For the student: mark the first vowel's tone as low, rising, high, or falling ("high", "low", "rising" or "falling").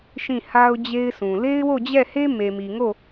falling